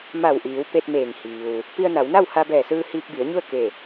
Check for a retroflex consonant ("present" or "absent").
absent